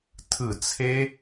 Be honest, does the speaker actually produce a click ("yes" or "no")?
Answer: no